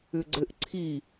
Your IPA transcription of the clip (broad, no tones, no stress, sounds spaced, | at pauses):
ʏ ɡ͡ǀ ɘ ʔ ǀʰ i